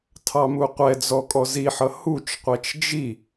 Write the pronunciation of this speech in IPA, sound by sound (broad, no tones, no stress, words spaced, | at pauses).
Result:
tʰɑmuqʷɛd͡zɔ kʼɔziħʌ hut͡ʃqʷɛt͡ʃ d͡ʒi